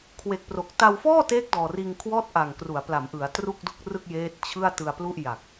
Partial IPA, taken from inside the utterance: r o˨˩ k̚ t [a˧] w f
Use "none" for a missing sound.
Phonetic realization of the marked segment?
a˧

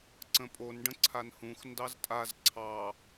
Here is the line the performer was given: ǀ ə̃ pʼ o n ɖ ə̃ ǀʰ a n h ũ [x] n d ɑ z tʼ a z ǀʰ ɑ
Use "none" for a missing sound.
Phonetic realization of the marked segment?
x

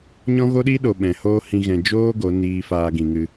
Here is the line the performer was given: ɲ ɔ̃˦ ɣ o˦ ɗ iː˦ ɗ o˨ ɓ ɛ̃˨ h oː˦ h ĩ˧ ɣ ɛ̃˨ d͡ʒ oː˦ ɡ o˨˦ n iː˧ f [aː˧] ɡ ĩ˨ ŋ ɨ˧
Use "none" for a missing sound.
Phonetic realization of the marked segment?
aː˧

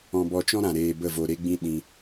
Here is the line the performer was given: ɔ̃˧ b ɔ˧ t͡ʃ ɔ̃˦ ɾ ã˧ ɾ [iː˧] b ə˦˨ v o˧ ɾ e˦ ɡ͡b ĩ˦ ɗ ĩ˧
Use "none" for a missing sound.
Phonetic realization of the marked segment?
eː˧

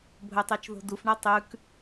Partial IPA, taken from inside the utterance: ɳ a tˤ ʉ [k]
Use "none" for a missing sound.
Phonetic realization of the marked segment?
k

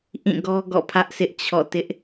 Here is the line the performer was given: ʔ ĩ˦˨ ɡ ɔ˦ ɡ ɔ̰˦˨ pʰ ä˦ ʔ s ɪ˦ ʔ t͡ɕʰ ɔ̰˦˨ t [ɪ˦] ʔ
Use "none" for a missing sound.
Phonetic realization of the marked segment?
ɪ˦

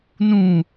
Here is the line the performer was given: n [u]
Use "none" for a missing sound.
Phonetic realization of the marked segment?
ũ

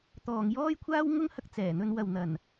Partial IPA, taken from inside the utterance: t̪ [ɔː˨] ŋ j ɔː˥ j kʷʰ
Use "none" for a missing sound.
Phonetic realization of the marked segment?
ɔː˨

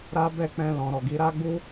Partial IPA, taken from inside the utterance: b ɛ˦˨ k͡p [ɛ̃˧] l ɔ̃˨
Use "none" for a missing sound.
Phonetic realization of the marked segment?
ɛ̃˧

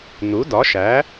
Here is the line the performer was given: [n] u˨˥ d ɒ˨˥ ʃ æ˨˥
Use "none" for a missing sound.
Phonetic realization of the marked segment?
n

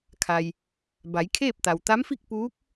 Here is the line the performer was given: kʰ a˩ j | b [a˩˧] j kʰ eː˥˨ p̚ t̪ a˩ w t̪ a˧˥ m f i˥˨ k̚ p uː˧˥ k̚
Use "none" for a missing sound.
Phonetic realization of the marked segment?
a˩˧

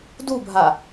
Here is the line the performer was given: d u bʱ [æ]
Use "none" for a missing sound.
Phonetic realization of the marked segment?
a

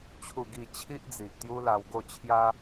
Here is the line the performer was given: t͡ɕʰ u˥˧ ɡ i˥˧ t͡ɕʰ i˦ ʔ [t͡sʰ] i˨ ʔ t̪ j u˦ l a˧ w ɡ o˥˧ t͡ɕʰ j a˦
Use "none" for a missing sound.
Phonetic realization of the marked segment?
d͡z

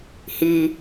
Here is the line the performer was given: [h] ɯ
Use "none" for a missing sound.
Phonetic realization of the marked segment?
h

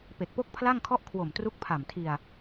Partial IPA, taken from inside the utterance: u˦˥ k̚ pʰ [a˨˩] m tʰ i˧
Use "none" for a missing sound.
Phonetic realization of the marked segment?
a˨˩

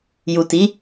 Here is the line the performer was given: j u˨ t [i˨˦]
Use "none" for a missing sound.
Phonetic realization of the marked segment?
i˨˦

